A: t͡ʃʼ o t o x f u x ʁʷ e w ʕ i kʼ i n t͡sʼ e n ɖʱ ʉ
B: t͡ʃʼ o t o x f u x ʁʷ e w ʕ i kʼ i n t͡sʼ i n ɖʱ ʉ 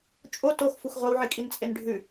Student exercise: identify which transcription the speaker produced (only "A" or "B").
A